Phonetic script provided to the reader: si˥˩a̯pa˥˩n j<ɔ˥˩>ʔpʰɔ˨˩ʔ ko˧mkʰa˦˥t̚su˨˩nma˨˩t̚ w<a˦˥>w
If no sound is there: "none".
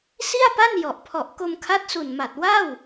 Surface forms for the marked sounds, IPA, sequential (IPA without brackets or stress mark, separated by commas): ɔ˨˩, a˥˩